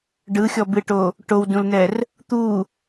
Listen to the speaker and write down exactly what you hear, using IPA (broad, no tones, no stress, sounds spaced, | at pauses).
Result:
ɖ ɯ xʲ ɔ b ɨ ʈ o | ʈ o w d ũ l n ɛ r | t̪ u